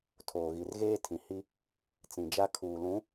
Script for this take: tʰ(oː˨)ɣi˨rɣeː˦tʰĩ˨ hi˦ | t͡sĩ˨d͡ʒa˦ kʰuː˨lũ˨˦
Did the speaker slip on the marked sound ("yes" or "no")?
no